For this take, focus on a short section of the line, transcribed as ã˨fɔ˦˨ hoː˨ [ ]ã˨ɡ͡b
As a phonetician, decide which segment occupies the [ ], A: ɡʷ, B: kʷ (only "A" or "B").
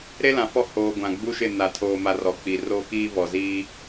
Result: A